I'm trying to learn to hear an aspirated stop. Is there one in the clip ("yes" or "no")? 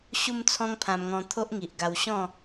yes